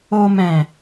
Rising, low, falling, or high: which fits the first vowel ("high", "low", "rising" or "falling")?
low